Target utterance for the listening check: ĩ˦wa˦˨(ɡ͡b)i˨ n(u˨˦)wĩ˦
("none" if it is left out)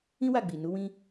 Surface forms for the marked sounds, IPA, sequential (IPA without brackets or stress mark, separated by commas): ɡ͡b, u˨˦